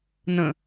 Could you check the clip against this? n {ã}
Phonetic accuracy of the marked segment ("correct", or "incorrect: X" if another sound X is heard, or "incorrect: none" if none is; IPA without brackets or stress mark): incorrect: ə̃